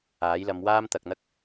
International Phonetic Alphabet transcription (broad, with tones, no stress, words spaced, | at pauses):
aː˨˥jlɐ˨˧m waː˥mt̪ɐ˨k̚n̪ɐ˥k̚